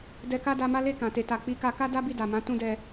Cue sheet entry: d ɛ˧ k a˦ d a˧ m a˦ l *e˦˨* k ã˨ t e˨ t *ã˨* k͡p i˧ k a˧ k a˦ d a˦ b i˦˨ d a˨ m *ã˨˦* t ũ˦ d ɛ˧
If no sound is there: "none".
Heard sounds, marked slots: e˦˨, a˨, ã˨˦

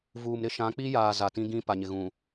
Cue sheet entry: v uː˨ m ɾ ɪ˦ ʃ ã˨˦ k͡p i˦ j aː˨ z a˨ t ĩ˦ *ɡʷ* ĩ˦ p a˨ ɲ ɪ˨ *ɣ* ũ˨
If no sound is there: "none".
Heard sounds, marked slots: ɡ, ɣ

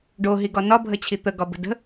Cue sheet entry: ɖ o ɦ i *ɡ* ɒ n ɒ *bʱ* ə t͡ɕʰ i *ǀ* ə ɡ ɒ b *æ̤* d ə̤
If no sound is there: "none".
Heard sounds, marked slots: ɡ, bʱ, t̪, ə̤

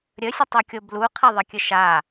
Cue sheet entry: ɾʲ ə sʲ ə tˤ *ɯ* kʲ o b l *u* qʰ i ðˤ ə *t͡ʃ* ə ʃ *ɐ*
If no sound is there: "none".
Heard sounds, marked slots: u, u, kʲ, a

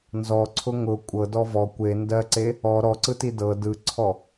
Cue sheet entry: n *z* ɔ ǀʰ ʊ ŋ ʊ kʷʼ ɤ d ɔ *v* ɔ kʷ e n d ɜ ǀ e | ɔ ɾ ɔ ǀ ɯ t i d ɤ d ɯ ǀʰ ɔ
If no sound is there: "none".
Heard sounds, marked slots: z, v

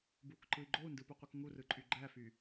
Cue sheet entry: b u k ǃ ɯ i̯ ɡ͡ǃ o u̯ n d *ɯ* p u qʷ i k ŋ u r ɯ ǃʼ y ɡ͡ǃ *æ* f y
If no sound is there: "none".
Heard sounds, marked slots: ɯ, æ

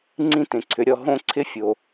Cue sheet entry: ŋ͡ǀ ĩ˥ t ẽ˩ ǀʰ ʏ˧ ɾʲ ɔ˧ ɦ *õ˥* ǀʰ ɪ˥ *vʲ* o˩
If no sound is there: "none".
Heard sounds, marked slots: õ˥, fʲ

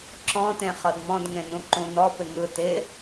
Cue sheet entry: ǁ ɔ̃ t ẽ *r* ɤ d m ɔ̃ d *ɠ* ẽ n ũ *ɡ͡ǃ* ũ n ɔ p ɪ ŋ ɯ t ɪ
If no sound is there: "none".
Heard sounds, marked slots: χ, ŋ, ǃ

